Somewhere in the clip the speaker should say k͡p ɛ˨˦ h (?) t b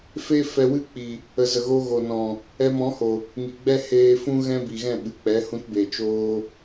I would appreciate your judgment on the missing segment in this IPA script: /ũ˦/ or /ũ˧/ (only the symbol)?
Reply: ũ˦